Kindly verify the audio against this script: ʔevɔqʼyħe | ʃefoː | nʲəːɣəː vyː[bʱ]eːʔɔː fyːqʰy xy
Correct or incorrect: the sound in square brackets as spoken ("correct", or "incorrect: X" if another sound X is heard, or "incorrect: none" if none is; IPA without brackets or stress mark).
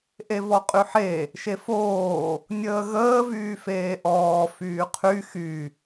incorrect: f